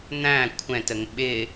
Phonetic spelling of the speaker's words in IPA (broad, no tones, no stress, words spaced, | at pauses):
n̪æ̃ kʷʰɛ̃təŋ ɓɪ